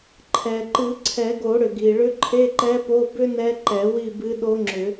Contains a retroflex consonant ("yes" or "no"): yes